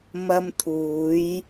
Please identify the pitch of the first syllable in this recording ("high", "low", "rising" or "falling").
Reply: high